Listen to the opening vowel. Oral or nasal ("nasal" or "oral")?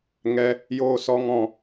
oral